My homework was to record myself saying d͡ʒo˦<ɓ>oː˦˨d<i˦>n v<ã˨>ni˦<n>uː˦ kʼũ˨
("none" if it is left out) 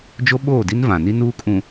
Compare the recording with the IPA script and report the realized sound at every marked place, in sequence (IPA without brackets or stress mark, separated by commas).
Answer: ɓ, i˦, ã˨, n